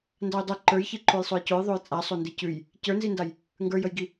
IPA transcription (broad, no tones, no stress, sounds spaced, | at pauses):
n d a j dˤ i ǃ ə˞ j ç i ǃ o j sˤ o j c o j ðˤ o j t͡sʼ a sˤ o n d i c ʉ j | c ə˞ n z i n d a j | ŋ ɡ ə˞ j ə j ɡ i